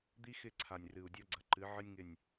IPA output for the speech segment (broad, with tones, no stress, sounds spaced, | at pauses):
d̪ i˦ x ɪ˦˨ ǀʰ a˨ nʲ r ɨ˨ u̯ dʲ ɔ˦ ɡ͡ǀ ɐ˨ ǃ ɨ˨˦ ʕ ɨ˦ nʲ ŋ ɪ˦˨ nʲ